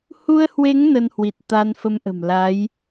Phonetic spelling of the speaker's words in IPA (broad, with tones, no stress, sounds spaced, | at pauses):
h u˧ ə̯ h w e˨˦ ŋ n ə˧ n h w i˨˩ t̚ t̪ a˧ n f ə˧ m ʔ ə̤˨˩ m l a˨˦ j